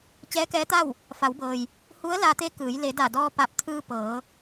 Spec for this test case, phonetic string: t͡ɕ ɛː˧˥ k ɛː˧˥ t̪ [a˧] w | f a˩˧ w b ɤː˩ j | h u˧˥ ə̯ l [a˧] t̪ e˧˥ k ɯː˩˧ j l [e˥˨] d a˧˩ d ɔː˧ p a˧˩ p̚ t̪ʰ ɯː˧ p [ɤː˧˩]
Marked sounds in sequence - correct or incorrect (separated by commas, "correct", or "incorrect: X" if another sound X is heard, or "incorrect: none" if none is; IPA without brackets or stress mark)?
incorrect: a˥˨, correct, incorrect: e˩˧, incorrect: ɤː˩˧